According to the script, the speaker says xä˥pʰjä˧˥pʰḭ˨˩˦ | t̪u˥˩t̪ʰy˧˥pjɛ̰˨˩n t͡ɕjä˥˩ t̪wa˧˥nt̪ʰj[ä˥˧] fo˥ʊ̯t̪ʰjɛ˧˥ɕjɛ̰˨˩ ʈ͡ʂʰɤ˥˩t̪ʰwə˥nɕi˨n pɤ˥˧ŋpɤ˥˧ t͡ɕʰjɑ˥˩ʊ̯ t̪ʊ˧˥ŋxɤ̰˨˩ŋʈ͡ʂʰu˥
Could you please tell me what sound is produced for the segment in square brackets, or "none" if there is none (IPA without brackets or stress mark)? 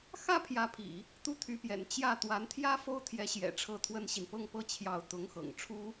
ä˥